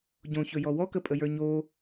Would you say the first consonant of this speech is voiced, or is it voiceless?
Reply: voiced